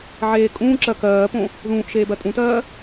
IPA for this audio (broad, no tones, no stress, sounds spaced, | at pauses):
ʕ eː kʼ ũː ǁ ɜ k ɜː p õ | ð ũː ʔ ʃ eː b ɜ tʼ ũ t ɜː